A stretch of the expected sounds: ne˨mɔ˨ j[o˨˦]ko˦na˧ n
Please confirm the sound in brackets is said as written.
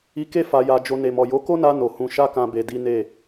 yes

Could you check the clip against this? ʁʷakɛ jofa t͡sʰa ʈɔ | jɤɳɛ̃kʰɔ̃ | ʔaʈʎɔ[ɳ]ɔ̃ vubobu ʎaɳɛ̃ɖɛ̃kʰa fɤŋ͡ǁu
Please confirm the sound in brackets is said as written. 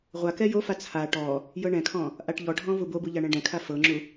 no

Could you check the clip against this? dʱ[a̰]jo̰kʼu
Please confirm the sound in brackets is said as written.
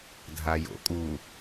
no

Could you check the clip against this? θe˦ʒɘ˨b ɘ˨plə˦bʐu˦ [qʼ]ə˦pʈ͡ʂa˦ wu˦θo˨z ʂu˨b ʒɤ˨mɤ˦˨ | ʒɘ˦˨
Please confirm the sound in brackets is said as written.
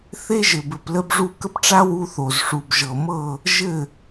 no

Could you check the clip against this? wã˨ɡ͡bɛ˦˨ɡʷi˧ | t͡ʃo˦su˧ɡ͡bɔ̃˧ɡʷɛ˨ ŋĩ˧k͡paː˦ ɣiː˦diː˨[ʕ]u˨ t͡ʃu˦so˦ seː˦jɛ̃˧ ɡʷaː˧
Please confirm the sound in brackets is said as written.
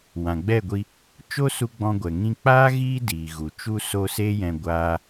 no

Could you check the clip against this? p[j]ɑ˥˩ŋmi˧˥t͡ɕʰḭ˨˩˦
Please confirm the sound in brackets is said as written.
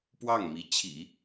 no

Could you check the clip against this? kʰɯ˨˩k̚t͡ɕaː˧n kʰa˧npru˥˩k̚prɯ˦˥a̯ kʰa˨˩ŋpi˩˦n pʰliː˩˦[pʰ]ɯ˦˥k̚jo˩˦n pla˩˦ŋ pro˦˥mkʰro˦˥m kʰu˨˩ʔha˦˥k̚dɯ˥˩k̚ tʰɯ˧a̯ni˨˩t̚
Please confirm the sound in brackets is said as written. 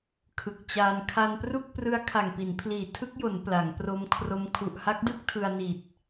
no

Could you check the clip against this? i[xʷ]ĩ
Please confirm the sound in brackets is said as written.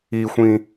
yes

